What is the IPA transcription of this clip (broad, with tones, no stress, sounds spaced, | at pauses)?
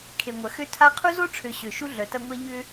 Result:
kʰ e˨ ŋʷ ɐ˨ x ø˦ tʰ a˦ qʰ u˦ z o˦ ʈ͡ʂʰ ø˨ ɕ ø˨ ʃ u˦ ɮ œ˨ t ɐ˦ ŋʷ ɛ˦ ʎ ʏ˦